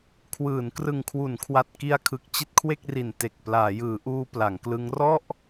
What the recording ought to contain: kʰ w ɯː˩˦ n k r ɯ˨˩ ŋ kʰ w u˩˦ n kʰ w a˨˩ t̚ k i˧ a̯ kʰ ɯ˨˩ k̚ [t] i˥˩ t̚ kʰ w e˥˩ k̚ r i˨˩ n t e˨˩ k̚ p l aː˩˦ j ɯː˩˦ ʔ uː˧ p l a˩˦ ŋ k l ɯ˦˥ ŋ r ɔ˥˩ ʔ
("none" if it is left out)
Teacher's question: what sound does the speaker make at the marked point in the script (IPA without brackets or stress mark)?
t͡ɕ